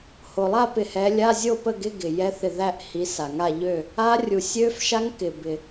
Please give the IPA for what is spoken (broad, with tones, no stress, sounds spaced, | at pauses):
h o˩ lˠ a˥˨ p ɪ˧˩ h ɛ˨˦ lʲ a˧˥˧ zʲ o˥˨ p ə˥˨ ɡ ɪ˧˥˧ ɡ ɪ˩ j ɛ˦˥ θ ɪ˧˩ ð æ˥˨ ʔ h i˨˦ s a˩ ŋ a˥˨ ʎ ø˥˨ | a˦˥ rʲ u˩ sʲ ø˦˥ f ʃ a˦˥ ŋ k ɪ˩ b ɪ˩